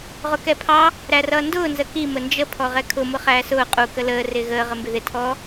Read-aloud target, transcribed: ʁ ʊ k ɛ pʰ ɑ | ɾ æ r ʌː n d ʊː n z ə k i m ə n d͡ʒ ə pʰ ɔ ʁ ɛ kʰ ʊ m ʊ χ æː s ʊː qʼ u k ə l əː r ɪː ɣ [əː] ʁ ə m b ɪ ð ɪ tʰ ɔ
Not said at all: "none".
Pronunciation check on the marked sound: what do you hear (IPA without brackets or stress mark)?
əː